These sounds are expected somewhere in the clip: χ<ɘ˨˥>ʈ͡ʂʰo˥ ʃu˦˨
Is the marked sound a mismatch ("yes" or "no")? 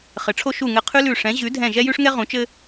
no